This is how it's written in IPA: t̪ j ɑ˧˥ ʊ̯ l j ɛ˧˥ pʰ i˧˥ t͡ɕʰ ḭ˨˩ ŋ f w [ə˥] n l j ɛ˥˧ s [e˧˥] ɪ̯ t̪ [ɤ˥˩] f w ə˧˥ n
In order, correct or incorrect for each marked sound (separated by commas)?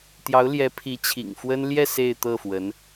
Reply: correct, incorrect, correct